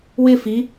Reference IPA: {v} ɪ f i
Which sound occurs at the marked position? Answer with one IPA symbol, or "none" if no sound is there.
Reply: w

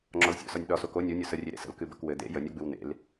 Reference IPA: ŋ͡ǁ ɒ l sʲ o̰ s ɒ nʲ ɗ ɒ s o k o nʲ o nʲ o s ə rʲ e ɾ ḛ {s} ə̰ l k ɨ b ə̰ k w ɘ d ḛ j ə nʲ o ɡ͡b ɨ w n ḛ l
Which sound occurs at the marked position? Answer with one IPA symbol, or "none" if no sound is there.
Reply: s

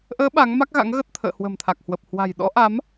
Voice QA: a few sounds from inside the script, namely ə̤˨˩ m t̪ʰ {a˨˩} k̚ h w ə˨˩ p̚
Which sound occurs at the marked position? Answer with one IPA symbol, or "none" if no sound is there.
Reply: a˨˩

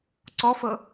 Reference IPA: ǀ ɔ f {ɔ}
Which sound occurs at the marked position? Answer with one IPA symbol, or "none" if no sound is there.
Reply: ɤ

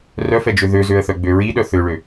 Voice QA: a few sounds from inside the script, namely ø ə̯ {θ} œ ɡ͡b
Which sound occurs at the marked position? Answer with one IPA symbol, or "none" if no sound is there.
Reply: θ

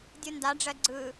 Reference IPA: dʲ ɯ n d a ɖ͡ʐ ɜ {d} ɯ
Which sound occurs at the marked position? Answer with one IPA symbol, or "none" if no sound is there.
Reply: ɡ͡ǀ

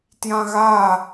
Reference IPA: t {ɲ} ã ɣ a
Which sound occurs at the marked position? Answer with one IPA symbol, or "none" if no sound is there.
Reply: j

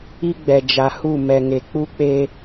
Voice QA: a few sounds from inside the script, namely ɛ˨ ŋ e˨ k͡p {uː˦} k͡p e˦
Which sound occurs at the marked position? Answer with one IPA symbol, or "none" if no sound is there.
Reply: u˦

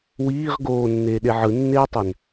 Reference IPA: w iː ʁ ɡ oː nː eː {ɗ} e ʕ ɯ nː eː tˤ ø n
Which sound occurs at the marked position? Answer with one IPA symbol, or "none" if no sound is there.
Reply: ɗ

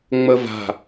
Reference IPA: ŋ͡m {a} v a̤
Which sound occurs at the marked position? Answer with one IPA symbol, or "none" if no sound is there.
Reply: ə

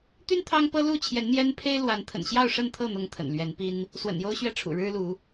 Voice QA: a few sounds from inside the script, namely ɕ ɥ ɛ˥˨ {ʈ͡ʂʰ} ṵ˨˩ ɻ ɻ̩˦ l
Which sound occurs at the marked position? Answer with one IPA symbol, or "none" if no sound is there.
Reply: ʈ͡ʂʰ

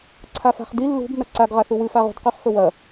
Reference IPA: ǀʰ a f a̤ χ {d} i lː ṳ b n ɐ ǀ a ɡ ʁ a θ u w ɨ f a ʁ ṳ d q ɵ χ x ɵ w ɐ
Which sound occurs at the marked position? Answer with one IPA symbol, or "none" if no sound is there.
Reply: d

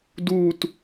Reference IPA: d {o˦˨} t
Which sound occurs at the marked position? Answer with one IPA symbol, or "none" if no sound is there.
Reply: u˦˨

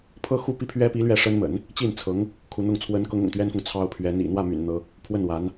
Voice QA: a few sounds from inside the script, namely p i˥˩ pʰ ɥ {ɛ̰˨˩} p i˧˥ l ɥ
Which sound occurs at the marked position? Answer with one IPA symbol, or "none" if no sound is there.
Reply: ɛ˥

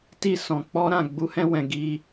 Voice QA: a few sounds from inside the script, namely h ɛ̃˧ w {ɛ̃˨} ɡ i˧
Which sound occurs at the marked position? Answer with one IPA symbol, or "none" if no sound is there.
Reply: ɛ̃˨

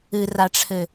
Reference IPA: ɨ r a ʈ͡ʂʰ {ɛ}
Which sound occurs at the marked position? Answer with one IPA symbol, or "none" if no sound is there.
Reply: ɘ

